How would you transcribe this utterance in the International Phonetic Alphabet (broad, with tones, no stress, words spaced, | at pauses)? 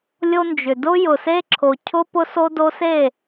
lʲo˦nd͡ʒʏ˨ dʊ˦ jʊ˨se˦ǁʰo˨ cʰʊ˦ pʊ˦so˦do˦ se˦˨